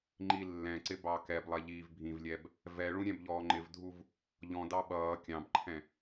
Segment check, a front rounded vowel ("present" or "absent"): absent